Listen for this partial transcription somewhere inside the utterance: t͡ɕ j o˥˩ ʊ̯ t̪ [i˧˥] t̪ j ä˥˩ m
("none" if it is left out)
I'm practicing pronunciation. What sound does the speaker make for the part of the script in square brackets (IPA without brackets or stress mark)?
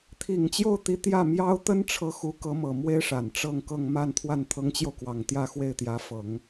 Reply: i˧˥